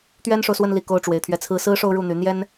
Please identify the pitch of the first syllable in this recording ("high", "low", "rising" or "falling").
high